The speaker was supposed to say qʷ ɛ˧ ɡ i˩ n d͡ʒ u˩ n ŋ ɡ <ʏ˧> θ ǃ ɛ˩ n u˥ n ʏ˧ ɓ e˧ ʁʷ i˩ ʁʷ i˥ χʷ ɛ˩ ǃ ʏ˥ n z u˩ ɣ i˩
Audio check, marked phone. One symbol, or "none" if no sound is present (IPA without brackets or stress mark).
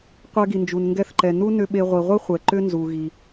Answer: ɛ˧